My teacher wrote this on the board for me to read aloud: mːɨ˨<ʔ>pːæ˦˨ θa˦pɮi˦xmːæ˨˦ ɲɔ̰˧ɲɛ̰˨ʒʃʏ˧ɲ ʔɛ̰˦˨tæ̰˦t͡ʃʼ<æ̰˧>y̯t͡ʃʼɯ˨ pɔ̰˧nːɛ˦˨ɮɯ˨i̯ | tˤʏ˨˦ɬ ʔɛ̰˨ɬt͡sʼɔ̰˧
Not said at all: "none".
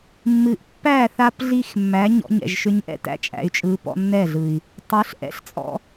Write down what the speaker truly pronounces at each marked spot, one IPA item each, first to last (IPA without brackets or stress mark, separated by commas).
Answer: ʔ, æ̰˨